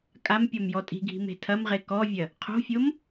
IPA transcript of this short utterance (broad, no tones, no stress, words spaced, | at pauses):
kʼam pʲɔmjɔtʼi̤ɡʱi̤ me̤tʰɐmʁe kɔvʲɐ | qʰo̤fʲom